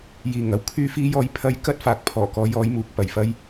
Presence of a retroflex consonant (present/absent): absent